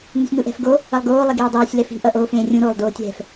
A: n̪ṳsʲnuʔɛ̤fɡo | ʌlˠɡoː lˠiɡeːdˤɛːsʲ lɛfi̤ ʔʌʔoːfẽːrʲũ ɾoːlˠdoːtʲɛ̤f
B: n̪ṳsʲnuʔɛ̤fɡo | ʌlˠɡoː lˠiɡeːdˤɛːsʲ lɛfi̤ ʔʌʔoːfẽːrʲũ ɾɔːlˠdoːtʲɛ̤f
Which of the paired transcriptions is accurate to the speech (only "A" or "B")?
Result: A